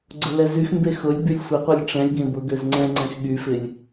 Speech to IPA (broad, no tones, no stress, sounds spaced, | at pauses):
ɡ͡ǀ ʊ l ɛ z y x m b e x ʊ lʲ b y lʲ sʷ ɪ qʷ e lʲ ʈ͡ʂ ɛ̃ lʲ ɡ ẽ b ʊ ɡ ø z ŋ͡ǀ ɛ̃ ŋ͡ǀ ɛ̃ x ɠ y f ɪ lʲ